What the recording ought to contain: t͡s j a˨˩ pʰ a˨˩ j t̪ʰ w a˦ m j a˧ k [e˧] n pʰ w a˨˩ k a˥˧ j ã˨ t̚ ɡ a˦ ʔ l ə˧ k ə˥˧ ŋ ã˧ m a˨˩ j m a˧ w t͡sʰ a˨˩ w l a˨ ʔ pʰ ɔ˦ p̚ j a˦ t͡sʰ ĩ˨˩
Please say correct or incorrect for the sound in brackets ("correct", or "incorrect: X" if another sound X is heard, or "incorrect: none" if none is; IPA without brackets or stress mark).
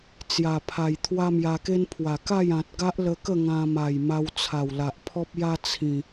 incorrect: e˦